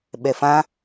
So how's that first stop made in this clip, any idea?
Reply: implosive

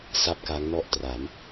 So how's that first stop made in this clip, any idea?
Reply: plain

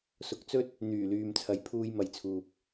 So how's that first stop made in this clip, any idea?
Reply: plain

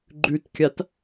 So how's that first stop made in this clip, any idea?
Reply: click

